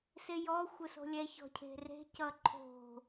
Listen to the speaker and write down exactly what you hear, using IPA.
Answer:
sejɔ xʷəso̤lʲɛ çɔ̤cʰe̤re̤ cʌǃʰo̤

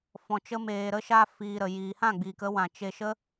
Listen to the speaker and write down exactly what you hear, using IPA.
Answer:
fɔ̃˧t͡ʃə˦meː˧ɾə˦ ʃa˧ fiː˧ɾə˨ jiː˨hã˦˨ɡ͡biː˨k ə˦wã˨ t͡ʃe˧ʃə˦

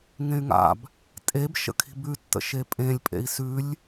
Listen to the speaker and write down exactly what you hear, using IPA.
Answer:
ŋẽy̯ŋa̰b | tʼeb ʃə̰kʰi̤bʉtːə̰ ʃepʼẽlʲpʼḛi̯ sʉlʲ

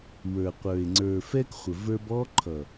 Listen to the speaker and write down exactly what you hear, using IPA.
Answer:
wə˞˨qʷə˞˨e̯ ŋ͡ǀə˞˨fɛ˦k χʷə˨və˞˦b ɔ˦ ǃʰʌ˨

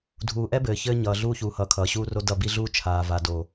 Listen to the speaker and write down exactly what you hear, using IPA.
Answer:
dʱuː˨ʔɛ˦ bɘː˨çɘː˦ ɲʌː˨ ɮuː˦çuː˨hʌː˨ kʰʌː˨ɕuː˦ro˦ dʌ˦˨bi˦ɮuː˦ t͡ʃʰaː˨va˨ do˨

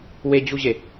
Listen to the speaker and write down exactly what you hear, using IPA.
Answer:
wed͡ʑuʑe

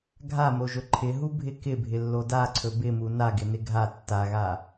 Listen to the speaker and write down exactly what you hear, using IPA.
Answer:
ɡʱamoʒɵ ǃʰɪɦubʱɪ kɪbʱɪlːo daǀʰɵ bɪmu naɡɪnɪ ɡʱa tːaɣa

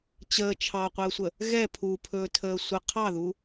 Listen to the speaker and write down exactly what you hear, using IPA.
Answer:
t͡ɕəː t͡ʃʰɑqʷəːsʷə | ɣɛ pʰupʰɵːtʰəː sʷə qʰɑðu

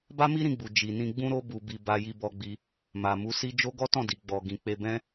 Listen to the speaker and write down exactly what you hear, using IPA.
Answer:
ba˦mi˦ɾĩ˧ɡ͡bu˨ d͡ʒi˨nĩ˧ ɡ͡bũ˧ɾo˧ bu˨bi˨ ba˧ji˧bɔ˧ɡ͡bi˧ | ma˨mu˨˦ si˦ d͡ʒo˦ ɡɔ˦tɔ̃˦˨di˨ ɡ͡bɔ˨ɡĩ˨ k͡pe˧bɛ̃˦

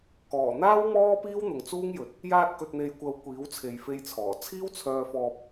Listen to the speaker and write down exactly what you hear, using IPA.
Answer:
kɔː˨˩n̪aː˥w mɔː˥piː˥w n̪ʊ˨ŋt͡suː˥ŋjɵ˨t̚ | jaː˧t̚kɵ˨t̚n̪e˨jkʷɐ˨w kʷiː˨˥wt͡sʰe˨jfe˧j t͡sʰɔː˨˩ t͡sʰiː˥wt͡sʰœː˧ fɔː˧p̚

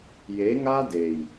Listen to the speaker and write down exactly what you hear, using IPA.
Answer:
je˨˦ŋa˦de˨j

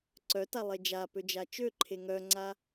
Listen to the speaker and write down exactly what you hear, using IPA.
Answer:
ǀœtalˠe d͡ʒapød͡ʒa t͡ʃøǃʰe ŋœŋ͡ǀa

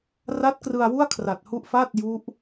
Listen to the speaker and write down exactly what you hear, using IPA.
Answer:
ra˦˥t̚krɯ˧a̯ wu˥˩a̯kʰra˨˩t̚hu˦˥ʔ fa˥˩t̚ju˦˥ʔ

